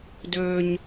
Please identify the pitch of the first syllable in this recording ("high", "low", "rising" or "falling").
high